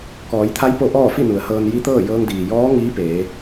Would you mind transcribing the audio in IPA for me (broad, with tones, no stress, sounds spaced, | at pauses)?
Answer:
k ɔː˩˧ j t̪ʰ a˧˥ j p o˧˥ ʔ ɔː˥˨ f i˥˨ n u˩˧ ə̯ h ɤː˧ n j i˧˥ t̪ ɤː˥˨ j ɤː˧ ŋ d iː˩ j ɔː˧˥ ŋ iː˧˥ p eː˩˧